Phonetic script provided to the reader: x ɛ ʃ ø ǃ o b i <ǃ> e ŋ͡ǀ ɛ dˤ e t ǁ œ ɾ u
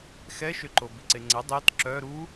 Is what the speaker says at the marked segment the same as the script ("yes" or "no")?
no